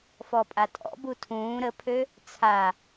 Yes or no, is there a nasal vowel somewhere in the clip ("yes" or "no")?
yes